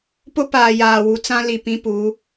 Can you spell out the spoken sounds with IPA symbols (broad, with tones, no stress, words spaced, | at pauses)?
pʊ˦paː˨ jaː˨wu˨˦t͡sã˦ li˨pĩ˦pu˨˦